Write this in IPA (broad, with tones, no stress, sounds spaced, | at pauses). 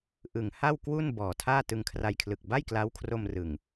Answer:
ʔ ɯ˩˦ ŋ h a˥˩ w k w u˥˩ n b ɔː˨˩ tʰ aː˥˩ t ɯ˧ ŋ kʰ r a˧ j kʰ l ɯ˨˩ k̚ b a˥˩ j k l a˦˥ w kʰ r o˧ m r ɯ˨˩ ŋ